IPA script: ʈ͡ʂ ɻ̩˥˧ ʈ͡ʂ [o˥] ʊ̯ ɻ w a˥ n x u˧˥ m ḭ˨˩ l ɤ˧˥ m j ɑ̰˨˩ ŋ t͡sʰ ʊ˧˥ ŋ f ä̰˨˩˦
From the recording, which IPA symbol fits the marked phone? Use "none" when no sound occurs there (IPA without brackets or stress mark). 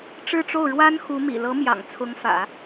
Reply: o˥˩